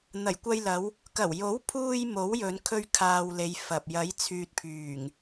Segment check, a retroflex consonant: absent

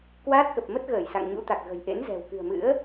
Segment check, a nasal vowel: absent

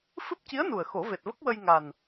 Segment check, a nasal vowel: absent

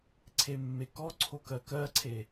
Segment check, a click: present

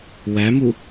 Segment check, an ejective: absent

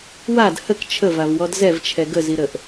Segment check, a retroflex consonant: absent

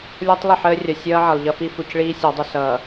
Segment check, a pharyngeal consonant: present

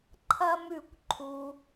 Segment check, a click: present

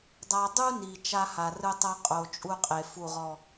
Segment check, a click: absent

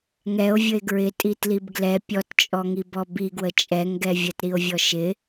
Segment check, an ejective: present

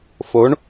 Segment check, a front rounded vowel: absent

